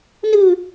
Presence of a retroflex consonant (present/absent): absent